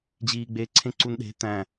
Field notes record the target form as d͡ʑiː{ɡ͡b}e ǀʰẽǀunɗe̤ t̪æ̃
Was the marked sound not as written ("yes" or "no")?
no